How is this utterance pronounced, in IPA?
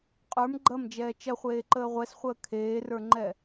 qʼ ə˞ m ɡ͡ǃ ɐ m d͡ʒ ɛː t͡ʃ ɐ χʷ eː ǃ əː ʁʷ ɛ s χʷ əː kʰ eː r ə˞ ŋ͡ǃ ɛ

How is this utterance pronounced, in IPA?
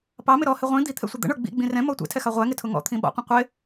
p ɑ m ɪ ɾ ɔ h ɪ ʁʷ ĩ d̪ i t̪ʰ ɛ̰ sʷ ɪ d̪ ə̰ ɳ ə˞ ɡ͡b ḭ ɡ͡b ĩ r ɛ̃ m ɔ tʷ ɛ̰ tʰ ɛ x ɑ ʁʷ æ ŋ ɪ tʰ ʊ ŋ ɔ̰ t̪ʰ ĩ ɓ ɔ̰ qʷ ə̃ qʷ ɪ

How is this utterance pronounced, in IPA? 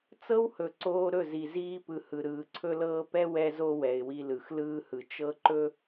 t͡s ɤ˦ w h ɵ˨ ǀ oː˦ ɾ ɵ˦˨ z i˨ z iː˦ p ɯ˨ h ɯ˨ ɾ ɯː˨ ǀʰ ɵ˦ l ɤː˦ p ɛ˦ w ɛ˦ z o˦ w ɛ˨ ɪ̯ w i˨ l ɯ˨ x l ɯː˦ h ɯ˨ t͡ʃ ɤ˦ ǃ ɵ˦

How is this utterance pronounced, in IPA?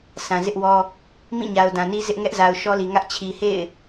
sʰ ã˨ z ɪ˦ ʔ w ɔ˦ | m ĩ˦˨ ɲ a˨ ʊ̯ d ã˨ n i˦ z ɪ˦ ʔ ŋ ɛ˦ ʔ z a˨ ʊ̯ ʃ ɔ˦ l i˨ ŋ ä˦ ʔ t͡ɕʰ i˨ h ḛ˦˨ ɪ̯

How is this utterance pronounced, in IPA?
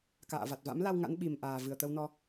k a̰ː˧˨ v a˨˩ t̚ v a̰˧˥ m l a˧ w ŋ a̰˧˥ n ɓ i˨˩ m ʔ aː˨˩ v ɨ˨˩ ə̯ t̪ ə˧ w n ɔ˧

